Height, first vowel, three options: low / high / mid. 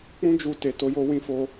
high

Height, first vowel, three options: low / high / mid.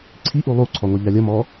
high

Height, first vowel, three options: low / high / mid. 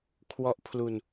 mid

